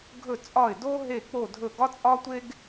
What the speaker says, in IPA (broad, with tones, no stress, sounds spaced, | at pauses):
ɡʱ ɵ˦˨ t͡sʼ ɒ˦˨ ɪ̯ d o˥ ɦ e˦˨ k͡p o˦˨ dʱ ɵ˦˨ ɡ ɒ˥ t͡sʼ ɒ˥ tʷ e˥ ɡ